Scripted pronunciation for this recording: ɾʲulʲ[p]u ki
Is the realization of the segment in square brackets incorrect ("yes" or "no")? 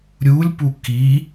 no